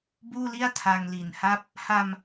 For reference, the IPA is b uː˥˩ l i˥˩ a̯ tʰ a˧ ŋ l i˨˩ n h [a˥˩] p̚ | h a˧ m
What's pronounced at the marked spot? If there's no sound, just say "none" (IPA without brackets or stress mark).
a˥˩